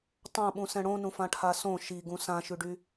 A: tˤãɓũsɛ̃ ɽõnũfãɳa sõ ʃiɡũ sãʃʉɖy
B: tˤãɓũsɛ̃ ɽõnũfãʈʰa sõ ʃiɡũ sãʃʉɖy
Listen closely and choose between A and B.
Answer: B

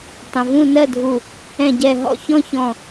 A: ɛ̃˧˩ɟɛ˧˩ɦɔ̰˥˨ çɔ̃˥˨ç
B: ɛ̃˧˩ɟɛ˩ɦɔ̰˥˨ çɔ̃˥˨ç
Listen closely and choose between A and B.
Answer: A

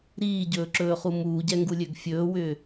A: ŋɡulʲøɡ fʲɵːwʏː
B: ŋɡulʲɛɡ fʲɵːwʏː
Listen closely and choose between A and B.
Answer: A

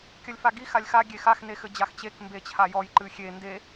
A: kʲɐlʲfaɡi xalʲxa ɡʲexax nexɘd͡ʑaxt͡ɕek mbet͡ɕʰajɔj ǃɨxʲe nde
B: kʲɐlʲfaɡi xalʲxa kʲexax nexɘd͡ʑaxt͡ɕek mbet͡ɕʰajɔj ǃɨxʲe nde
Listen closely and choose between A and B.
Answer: A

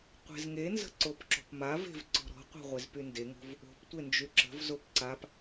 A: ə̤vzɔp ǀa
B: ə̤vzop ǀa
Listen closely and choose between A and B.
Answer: B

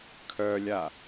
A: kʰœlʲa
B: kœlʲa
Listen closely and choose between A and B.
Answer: A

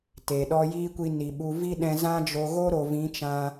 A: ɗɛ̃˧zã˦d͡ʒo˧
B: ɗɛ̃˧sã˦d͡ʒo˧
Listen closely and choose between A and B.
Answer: A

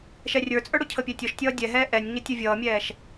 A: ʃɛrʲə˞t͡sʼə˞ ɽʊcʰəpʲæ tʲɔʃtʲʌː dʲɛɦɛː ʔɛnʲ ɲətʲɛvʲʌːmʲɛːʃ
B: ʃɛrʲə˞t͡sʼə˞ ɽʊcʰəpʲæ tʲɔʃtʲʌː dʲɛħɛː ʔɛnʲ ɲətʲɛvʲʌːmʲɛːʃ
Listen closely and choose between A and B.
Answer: A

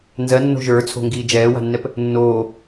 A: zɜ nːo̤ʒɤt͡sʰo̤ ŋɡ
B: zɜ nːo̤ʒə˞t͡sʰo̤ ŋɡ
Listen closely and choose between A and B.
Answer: B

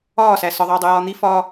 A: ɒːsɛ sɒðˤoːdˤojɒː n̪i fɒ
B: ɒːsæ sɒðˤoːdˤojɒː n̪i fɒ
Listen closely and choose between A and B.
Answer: B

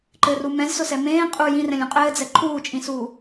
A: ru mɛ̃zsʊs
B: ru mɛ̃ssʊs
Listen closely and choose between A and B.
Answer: A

